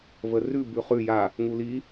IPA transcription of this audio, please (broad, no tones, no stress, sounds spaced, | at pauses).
v ə r ʉ b ʉ χ ʉ j a | ŋ u l i